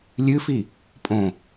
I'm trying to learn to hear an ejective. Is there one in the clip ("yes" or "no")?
yes